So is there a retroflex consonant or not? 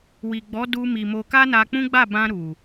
no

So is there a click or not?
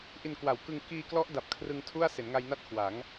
no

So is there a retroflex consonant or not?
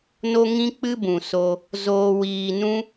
no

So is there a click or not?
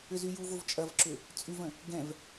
yes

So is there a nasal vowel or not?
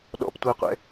no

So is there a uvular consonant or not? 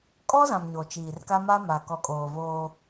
no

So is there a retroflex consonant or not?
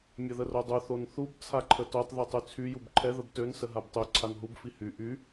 no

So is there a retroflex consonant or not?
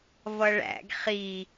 yes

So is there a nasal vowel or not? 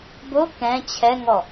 yes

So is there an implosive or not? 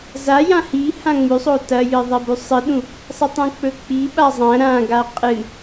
yes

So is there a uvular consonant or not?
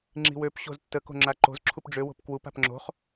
yes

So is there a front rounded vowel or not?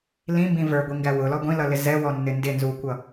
no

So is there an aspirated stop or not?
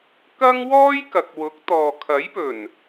yes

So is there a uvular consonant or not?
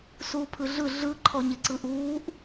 no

